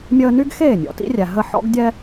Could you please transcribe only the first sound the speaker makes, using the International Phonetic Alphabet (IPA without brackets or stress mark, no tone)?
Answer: mʲ